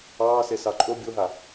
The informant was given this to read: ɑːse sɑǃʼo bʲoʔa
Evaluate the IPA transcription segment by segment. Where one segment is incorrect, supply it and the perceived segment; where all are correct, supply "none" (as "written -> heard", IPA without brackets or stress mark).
ʔ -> ɦ